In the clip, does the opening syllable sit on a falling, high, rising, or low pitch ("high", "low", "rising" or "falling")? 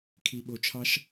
low